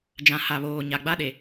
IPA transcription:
d͡ʒ ã˨ h a˨ β oː˨ ɲ a˨ ɡ͡b a˦ ɗ e˨

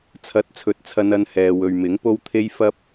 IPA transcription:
t͡sʰ ɐ˨˥ t̚ t͡sʰ ɵ˨˥ t̚ t͡sʰ ɐ˧ n ɐ˧ n h ɛː˨ w ɵ˨ ɥ m ɪ˨˥ ŋ p o˥ w t̪ʰ e˥ j f ɐ˥ p̚

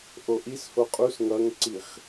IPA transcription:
ʔ o ʔ i s h o qʼ u s ŋ ʌ ŋ ǀ i χ

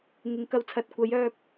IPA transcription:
ŋ ɪ˨ ŋ k ɐ˧ w t͡sʰ ɐ˨˥ t̚ kʷ ɐ˨˥ j œː˧ p̚

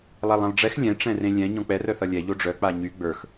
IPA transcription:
lˠ a lˠ ɛ̃ lˠ ɖ͡ʐ ɛ x lʲ ɛ̃ ʈ͡ʂ ɛ̃ r ẽ lʲ ɛ̃ ɲ ɔ̃ k͡p ɛ r œ θ ʌ lʲ ɛ ʎ o ɖ͡ʐ œ k͡p a ɲ y ɡ͡b ə˞ x

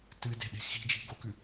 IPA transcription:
t ɨ d e̤ ɗ e̤ x i̤ d͡ʒ i̤ ɡ o k ʉ

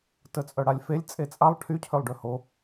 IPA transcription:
t ə t͡sʼ œ ɽ a lʲ f e lʲ t͡sʼ e t͡sʼ a lˠ ʈʰ y cʰ ø lˠ ɖ ø h o

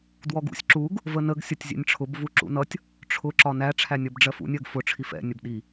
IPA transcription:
d w ɔ ɡ ṵ sʲ ǁ u ɡ | v ə n ə ɡ sʲ ʌ tʲ zʲ ɛ̰ nʲ ʈ͡ʂʰ ʊ b v u ǁ ṵ n ʌ tʲ | ʈ͡ʂʰ ʊ ǁ ɒ n æ ʈ͡ʂʰ æ nʲ ʌ b ɖ͡ʐ ɜ f ṵ nʲ ɜ ɡ f ʊ ʈ͡ʂʰ i f ɛ̰ nʲ ə b ɗ i

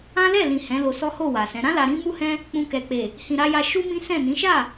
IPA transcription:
ã˦ l ɛ˦˨ l ĩ˨ h ɛ̃˨˦ l o˧ s ɔ˦ h o˦˨ w a˨ s ɛ̃˨˦ ɾ ã˦ l a˧ ɾ ĩ˦ m u˦ h ɛ̃˦ | k͡p ũ˧ k ɛ˨ k͡p e˨ | h ĩ˨ ɾ a˧ j a˧ ʃ u˦ m ĩ˦ s ɛ̃˦˨ n ĩ˨˦ ʃ a˦˨

